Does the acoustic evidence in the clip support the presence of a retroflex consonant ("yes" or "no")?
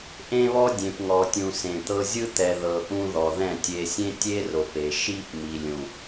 no